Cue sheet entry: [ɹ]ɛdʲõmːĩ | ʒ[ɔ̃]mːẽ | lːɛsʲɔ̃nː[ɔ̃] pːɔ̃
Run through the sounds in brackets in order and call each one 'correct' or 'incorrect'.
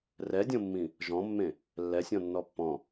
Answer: incorrect, correct, incorrect

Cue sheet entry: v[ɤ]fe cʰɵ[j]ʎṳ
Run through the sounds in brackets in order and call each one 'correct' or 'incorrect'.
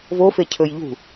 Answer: incorrect, correct

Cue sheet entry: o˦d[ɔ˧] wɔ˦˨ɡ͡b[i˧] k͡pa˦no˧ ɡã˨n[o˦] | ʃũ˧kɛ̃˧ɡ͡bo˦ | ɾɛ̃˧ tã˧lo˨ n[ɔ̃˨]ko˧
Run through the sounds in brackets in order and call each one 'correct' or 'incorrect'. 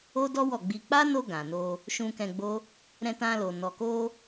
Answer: incorrect, correct, incorrect, incorrect

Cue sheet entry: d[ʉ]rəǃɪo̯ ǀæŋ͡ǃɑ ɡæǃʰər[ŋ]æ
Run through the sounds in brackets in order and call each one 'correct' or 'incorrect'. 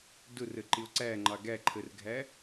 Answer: incorrect, incorrect

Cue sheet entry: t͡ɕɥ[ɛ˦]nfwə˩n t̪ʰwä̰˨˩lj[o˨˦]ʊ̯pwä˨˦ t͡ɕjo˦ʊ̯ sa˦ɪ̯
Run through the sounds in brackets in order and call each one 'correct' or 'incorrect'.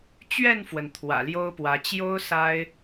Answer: incorrect, incorrect

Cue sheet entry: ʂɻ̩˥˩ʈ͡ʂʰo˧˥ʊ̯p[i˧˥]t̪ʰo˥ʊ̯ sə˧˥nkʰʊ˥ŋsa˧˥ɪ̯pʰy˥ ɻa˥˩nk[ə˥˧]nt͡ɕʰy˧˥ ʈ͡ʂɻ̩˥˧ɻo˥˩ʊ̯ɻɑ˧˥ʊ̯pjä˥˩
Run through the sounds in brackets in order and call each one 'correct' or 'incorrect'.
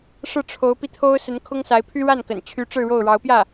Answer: incorrect, incorrect

